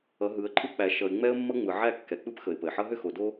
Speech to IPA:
ʌ˨˦ ɦ ɯ˨˦ ə̯ ǃʼ ɯ˦ k͡p æ˨ ʃ ʌ˨ ɪ̯ ŋ͡m ɛ˦ ə̯ mː ʌ˦ ŋ͡m ɯ˨ ʕ æ˦˨ kː ɛ˨ k͡p ɯ˦ p x ə˨ ɪ̯ p ə˨ ɪ̯ ħ ʌ˦ ɦ ʏ˦ x o˨ d o˦

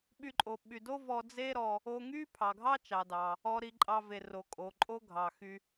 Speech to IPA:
ɓ y˧ ǃʼ o˩ ɓ y˩ d o˥ v ɔ˧ d͡z e˥ ɾ ɔ˧ | o˧ ŋ y˥ pʰ ɑ˩ ɡʱ ɑ˥ t͡ʃ ɑ˩ d ɑ˩ | ɔ˧ ɾ i˧ ǃʼ ɑ˧ v e˩ r o˩ kʼ o˩ ǃʼ o˥ ɡʱ ɑ˩ x y˧

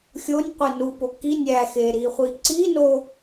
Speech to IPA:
xʲ o nʲ qʷ e n u p o k i nʲ æ x e ɾ i χʷ i ǀ i n o

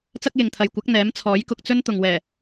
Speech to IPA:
t͡s ɐ˥ k̚ j ɪ˨ ŋ t̪ʰ ɐ˨ j kʷ ɐ˨˥ k̚ n̪ ɛː˨˥ m t͡sʰ ɔː˨˥ j k ʊ˧ k̚ t͡s ɵ˥ n t̪ ʊ˨ ŋ w ɛː˨˩

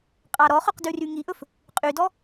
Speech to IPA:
qʼ ɑ ɾ ɔ χ ɵ q d ʉ r y ŋ i ʔ ɵ f | qʼ y d ɔ

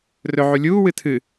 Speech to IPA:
r ɵ ʕ u lʲ uː w ɨ tʰ ɨ

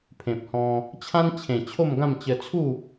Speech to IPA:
pʰ ẽ˨ p̚ h ɔ̃˧ | t͡ɕʰ ã˦ n t͡ɕʰ ẽ˨˩ t͡ɕʰ o˥˧ m ɡ ã˥˧ m t͡ɕ ə˧ t͡sʰ u˥˧

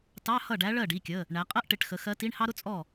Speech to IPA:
t ɑ˧˥˧ h ʌ˥˩ ɖ æ˧˥ ɭ ɜ˥˩ ɖ i˩˧˩ kʲ ə˩˧˩ | ɳ æ˩˧ qʼ ɜ˥ ʔ ʈ ɪ˩˧˩ ʈ x ə˩˧ x ɜ˧˥ t i˧˥˧ ɳ h ɑ˥ ɾ ʊ˥ t͡sʼ ɔ˥˩

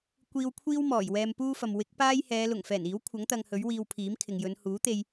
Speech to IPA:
kʷ iː˧ w kʷʰ iː˥ w m ɔː˨˩ j w ɛː˧ m p uː˥ f ɐ˨ m w ɪ˨˥ k̚ p aː˥ j h ɛː˨˧ l ʊ˨˩ ŋ f ɛː˨˩ n iː˨˥ w kʷʰ ɐ˨˥ ŋ t̪ ɐ˧ ŋ h ɵ˨˥ ɥ w iː˧ w pʰ iː˨˥ m kʰ ɪ˨ ŋ j ɵ˨˧ n h uː˨˥ t̪ e˧ j

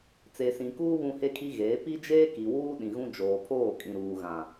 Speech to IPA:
t͡s e˨ s ĩ˨ k uː˦ β ũ˦ h e˦ kʰ i˦ ɣ eː˨˦ p i˦ d͡ʒ eː˦ k i˨ w uː˦ ɗ ĩ˨ ɣ ũ˦ d͡ʒ oː˨ pʰ oː˦˨ kʼ ĩ˨ ɾ uː˨ ɣ ã˨

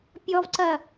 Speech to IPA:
pʲ ɔ v ǀ ɐ

